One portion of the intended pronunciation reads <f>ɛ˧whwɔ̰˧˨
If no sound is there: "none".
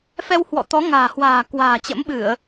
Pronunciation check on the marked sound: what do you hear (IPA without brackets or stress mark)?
f